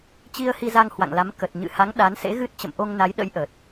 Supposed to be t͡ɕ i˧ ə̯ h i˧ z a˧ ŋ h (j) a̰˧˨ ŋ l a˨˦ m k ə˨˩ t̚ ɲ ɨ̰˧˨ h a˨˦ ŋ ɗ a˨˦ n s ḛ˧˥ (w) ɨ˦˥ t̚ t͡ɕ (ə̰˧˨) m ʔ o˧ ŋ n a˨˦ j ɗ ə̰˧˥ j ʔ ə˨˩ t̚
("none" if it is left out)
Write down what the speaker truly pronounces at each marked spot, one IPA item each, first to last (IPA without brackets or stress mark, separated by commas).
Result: w, ɣ, ə̰˧˨